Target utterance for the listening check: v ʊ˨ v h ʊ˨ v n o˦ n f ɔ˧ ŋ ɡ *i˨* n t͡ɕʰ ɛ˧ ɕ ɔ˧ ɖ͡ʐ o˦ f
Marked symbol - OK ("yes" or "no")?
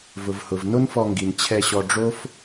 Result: yes